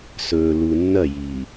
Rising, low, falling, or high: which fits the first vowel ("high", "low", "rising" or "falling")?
low